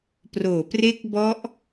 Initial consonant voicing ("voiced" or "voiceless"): voiceless